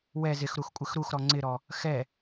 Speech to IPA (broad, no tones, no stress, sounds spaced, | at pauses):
w ɛ z ɪ x ɾ u x kʷʼ ɪ x ɾ u x ɾ ɔ ŋ͡ǀ ɪ ɾ ɔ | x ɛ